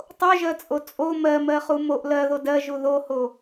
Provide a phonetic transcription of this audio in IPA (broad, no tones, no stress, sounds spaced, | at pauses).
tˤ o ʒ ɜ t͡sʼ o t͡sʼ o m ɜ m ɜ χ u m o ʔ l ɜ ð o d ɜ ʒ u ð o h o